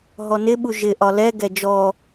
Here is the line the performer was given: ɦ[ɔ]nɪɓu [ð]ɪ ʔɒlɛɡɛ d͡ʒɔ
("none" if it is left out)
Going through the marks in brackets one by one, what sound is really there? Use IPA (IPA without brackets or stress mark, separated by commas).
ɔ, ʒ